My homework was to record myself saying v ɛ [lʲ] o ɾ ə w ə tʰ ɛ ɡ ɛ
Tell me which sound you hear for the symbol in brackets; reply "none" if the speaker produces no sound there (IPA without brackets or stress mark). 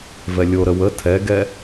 lʲ